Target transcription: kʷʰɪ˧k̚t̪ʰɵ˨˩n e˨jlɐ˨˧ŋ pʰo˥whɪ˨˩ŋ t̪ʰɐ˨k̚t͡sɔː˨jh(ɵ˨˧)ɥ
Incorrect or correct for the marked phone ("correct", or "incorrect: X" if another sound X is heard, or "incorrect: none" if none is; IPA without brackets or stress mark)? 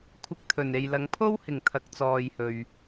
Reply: incorrect: ɵ˨